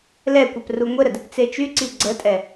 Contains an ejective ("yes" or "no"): yes